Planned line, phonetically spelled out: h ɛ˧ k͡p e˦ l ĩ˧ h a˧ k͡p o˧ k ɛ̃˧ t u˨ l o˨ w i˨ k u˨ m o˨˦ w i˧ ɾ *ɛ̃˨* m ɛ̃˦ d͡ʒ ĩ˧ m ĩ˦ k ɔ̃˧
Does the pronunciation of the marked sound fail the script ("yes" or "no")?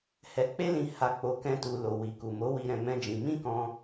yes